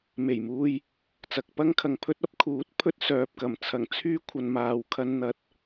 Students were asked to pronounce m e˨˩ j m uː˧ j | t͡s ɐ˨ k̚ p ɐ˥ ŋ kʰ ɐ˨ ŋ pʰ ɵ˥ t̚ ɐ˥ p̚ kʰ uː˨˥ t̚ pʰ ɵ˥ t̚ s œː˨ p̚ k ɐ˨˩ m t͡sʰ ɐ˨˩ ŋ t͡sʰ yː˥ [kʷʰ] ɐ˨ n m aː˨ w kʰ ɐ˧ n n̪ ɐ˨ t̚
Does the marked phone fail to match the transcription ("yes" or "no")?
no